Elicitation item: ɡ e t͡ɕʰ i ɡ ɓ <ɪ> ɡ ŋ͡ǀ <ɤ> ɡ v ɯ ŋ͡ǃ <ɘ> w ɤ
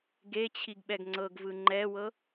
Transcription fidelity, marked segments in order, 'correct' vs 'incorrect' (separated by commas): incorrect, correct, incorrect